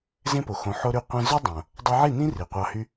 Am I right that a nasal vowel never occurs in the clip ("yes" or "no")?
no